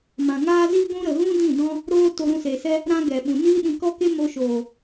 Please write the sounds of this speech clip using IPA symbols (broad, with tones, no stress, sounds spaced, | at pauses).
m ã˨ ŋ aː˦ z iː˦ ɡʷ ũ˦ ɾ ə˨ ɣ ũ˦ d ĩ˦˨ d ɔ̃˦ | ɾ oː˦ t o˧ ɾ ũ˧ s e˨ s ɛ˦ | ɾ ã˦ ɡ ɛ˨ ɓ ũ˨ n iː˦ ɗ ĩ˧ k ɔ˦ k e˦ m o˧ ʃ oː˨